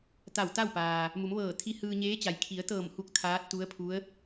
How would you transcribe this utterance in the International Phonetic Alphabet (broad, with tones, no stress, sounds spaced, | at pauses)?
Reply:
t̪ a˧˩ w t̪ a˥˨ w p aː˩ | m u˩˧ m ʋ ɤː˧˩ t̪ʰ i˧ h ɯː˧ ɲ eː˧˥ t͡ɕ a˩ j kʰ i˩˧ ə̯ t̪ ɤː˧˩ m h u˧˩ k̚ t̪ʰ aː˧˥ t̚ t̪ u˧˥ ə̯ pʰ u˧˥ ə̯